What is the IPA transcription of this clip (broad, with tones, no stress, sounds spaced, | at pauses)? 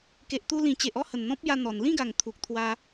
k e˨ ʔ t̪ u˧ l ĩ˨˩ t͡ɕ e˨ ʔ ɔ˥˧ h ə˨˩ n n̪ ɔ̃˦ p̚ j a˧ n̪ ɔ˨˩ n l ĩ˥˧ ɡ a˨˩ ŋ t̪ʰ u˨ k̚ t̪ʰ w a˧